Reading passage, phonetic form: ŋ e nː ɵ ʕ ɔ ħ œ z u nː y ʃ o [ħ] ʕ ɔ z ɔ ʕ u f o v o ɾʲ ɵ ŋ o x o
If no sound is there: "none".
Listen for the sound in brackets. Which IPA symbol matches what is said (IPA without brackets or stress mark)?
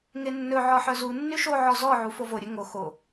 none